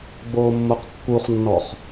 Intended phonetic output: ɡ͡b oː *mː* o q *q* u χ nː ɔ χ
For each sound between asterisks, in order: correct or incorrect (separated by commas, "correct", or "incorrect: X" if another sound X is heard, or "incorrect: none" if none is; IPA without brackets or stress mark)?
correct, incorrect: kː